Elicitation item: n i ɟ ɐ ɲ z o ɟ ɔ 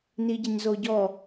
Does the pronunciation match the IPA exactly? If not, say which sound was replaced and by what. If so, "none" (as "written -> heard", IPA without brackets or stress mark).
none